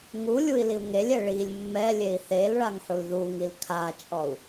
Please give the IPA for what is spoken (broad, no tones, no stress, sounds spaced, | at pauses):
ŋ u lʲ u i̯ l i u̯ ŋ e lʲ ɛ ɭ i lʲ mː ɛ lʲ e i̯ θ e l ɭ a ŋ ħ u l ð u ŋ i l kʰ a t͡ʃʼ ɔ u̯